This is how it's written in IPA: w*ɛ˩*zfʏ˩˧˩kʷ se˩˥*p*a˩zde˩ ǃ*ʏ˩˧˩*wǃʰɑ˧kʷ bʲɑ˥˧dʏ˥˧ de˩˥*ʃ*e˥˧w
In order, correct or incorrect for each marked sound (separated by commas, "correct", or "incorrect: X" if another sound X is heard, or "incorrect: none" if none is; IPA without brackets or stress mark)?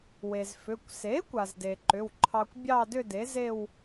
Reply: incorrect: e˩, incorrect: kʷ, correct, incorrect: z